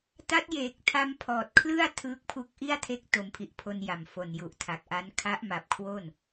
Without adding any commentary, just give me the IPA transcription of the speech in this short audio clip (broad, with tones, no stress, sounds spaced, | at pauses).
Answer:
t a˦˥ t̚ j eː˨˩ k̚ tʰ a˧ m pʰ ɔː˨˩ t̚ kʰ l ɯ˥˩ a̯ tʰ ɯː˦˥ k̚ pʰ u˦˥ k̚ ʔ i˥˩ a̯ tʰ e˦˥ k̚ t o˩˦ m pʰ i˨˩ ʔ pʰ o˧ n j a˨˩ m f o˨˩ n j u˨˩ ʔ tʰ a˨˩ k̚ ʔ a˦˥ n kʰ a˦˥ ʔ m a˨˩ p̚ kʰ w o˥˩ n